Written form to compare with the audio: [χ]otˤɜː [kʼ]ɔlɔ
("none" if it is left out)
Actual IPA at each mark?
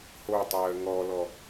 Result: h, ŋ

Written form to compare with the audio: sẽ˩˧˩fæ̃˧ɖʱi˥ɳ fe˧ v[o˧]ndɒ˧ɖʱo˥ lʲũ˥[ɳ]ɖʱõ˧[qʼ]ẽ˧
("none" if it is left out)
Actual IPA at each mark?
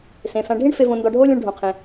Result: õ˧, ɳ, qʰ

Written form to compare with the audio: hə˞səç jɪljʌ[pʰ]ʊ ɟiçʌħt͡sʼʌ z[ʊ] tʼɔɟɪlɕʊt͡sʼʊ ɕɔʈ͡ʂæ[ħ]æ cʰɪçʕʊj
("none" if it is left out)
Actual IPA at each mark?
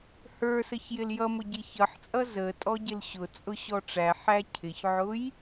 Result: m, ə, ħ

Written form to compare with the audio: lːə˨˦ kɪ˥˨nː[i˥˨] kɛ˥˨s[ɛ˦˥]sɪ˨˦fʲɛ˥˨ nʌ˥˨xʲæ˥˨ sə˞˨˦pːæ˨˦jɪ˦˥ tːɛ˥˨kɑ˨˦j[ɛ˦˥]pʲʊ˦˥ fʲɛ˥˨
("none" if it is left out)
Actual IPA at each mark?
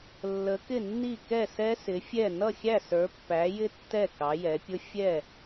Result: i˥˨, ɛ˦˥, ɛ˨˦

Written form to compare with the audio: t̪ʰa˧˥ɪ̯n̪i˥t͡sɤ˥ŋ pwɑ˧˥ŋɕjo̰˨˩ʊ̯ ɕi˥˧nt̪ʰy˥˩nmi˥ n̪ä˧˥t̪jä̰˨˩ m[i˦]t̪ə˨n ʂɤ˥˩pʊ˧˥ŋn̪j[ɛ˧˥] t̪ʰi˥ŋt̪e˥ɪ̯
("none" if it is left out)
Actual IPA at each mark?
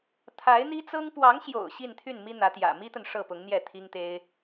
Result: i˥, ɛ˥˩

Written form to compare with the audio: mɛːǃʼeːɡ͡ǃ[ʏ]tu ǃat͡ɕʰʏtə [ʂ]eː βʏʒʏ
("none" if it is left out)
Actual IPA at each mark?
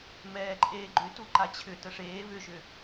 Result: ʏ, ʂ

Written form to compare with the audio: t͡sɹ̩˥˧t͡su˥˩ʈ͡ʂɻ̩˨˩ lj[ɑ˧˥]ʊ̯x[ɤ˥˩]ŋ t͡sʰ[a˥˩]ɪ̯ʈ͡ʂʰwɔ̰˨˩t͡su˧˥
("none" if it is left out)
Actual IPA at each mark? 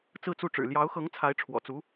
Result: ɑ˧˥, ɤ˧˥, a˧˥

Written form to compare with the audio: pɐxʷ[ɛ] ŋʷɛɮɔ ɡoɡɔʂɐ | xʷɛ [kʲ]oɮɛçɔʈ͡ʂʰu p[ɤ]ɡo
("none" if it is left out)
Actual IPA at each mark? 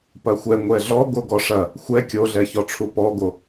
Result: ɛ, kʲ, ɔ

